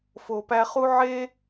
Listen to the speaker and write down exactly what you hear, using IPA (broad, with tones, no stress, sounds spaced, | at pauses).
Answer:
f o˨ p æ˧ χ u˦ ʕ e˦